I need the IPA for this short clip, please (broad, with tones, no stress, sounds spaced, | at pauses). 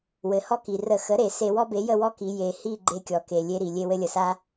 w ɘ˩ h ɔ˦ k i˩ r ə˧˩˧ x ə˩˥ ɾ e˧˩˧ s e˧˩˧ w ɔ˦ b e˩˥ j ə˦˨ w ɔ˦ k i˩˧ j e˩ h i˦˨ ɡ͡ǃ e˦ kʲ ɔ˩ k e˩ lʲ e˦ ɾ i˩ lʲ e˦˨ w ɘ˦ lʲ ə˩ s a˦